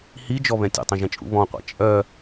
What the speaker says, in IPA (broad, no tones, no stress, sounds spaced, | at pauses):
h i d͡ʒ ɔ β ɛ̃ tʲ ṵ tˤ ɛ̃ ʒ ɛ̃ t͡ʃʼ ṵ β ɔ̃ qʷ a̰ t͡ʃʼ œ